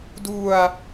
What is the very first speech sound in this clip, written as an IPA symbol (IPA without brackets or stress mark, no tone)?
d